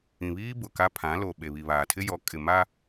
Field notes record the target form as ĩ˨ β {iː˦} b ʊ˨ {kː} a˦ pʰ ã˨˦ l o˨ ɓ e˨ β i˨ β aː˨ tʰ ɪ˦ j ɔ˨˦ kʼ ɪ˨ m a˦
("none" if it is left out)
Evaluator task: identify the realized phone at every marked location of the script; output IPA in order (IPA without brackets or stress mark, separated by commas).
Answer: iː˦, k